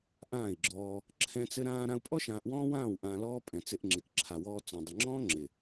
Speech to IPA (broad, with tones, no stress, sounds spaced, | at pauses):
ʔ ãː˦˨ i̯ ɡ͡ǁ ɔː˧ | ǁʰ ɛ̃˦ t͡s ɘ˦ ɾ ãː˧ ɾ ã˧ u̯ pʼ ɔ˦ ʃ ãː˧ ʔ w ɔ̃ː˦ w ãː˦˨ w ʔ ãː˧ l ɔː˦ pʼ ɛ̃˨ t͡s ɪ˧ ʔ ŋ͡ǁ ɪ˨ k ǁʰ a˨ w ɔː˧ t͡s ɔ̃˨ dˤ ɘ˨ ŋ͡ǁ ɔ̃ː˦ ŋ͡ǁ ɪ˨